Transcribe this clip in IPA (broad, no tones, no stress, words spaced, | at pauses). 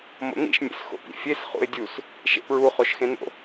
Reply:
mo̰n̪ḭʃ mʲḛsxo̰pḭfʲes χṵɪ̯dʲus | ʃḛpɹu χoʃxẽno̰